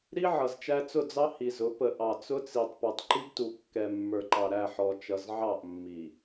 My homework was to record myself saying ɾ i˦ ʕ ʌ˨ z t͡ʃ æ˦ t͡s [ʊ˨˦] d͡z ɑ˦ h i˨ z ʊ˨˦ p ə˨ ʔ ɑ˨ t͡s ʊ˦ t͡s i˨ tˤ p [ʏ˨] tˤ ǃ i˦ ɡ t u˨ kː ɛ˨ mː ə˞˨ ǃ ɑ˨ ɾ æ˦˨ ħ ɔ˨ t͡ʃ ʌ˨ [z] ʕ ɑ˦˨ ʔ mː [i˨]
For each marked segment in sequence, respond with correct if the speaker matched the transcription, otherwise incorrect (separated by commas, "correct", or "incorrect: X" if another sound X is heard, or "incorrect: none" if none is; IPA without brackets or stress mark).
incorrect: ʊ˦˨, incorrect: u˨, correct, correct